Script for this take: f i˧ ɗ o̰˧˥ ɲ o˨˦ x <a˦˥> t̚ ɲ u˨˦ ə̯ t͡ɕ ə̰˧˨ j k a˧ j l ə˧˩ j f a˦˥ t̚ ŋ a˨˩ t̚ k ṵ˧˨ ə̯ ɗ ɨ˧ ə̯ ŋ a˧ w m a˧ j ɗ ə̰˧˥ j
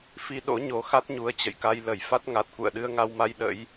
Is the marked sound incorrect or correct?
correct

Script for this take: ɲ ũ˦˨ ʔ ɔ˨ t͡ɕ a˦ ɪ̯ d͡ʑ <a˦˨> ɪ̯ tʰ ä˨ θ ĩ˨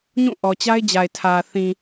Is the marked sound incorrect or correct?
incorrect: a˨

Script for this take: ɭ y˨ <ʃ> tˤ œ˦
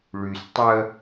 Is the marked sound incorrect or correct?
incorrect: s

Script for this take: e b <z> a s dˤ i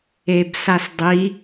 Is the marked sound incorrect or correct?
incorrect: s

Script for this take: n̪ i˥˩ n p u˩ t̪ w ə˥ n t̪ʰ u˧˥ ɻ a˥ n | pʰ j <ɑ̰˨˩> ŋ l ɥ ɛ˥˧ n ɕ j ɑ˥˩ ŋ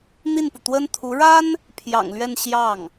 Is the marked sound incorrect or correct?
correct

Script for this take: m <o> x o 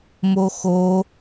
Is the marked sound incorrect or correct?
correct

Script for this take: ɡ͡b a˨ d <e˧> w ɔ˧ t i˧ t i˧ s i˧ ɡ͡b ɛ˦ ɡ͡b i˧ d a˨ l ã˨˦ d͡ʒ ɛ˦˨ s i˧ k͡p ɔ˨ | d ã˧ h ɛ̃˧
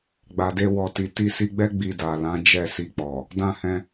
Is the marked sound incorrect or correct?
correct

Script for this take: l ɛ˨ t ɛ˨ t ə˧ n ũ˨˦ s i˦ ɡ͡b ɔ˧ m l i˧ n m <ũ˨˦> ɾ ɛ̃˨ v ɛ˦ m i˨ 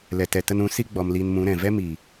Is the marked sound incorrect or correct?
correct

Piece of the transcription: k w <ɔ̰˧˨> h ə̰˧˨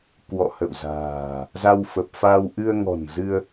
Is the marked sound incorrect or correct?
correct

